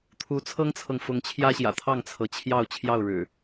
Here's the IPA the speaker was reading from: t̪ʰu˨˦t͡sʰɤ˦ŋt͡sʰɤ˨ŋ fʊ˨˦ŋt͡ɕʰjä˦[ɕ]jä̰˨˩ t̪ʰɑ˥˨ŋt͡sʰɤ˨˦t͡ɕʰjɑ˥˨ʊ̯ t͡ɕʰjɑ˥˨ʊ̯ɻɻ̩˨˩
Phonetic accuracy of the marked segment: correct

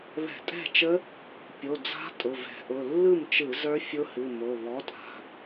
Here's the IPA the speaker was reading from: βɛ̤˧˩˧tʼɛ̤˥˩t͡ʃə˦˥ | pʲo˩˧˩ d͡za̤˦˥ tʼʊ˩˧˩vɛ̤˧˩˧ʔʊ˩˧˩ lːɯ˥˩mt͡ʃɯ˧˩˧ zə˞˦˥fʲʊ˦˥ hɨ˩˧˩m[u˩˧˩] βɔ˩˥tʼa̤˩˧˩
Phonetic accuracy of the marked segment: incorrect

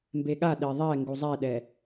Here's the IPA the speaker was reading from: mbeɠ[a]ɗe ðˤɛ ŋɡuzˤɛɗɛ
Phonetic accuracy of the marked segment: correct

